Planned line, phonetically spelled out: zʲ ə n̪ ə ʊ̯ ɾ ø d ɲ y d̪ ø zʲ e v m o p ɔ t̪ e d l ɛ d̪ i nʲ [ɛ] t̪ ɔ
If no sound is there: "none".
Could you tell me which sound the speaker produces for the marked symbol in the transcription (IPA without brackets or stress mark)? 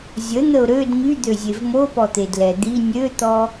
ø